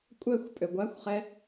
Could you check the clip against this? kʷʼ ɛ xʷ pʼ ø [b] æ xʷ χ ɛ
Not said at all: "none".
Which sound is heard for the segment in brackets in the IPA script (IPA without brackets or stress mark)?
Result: ɡʷ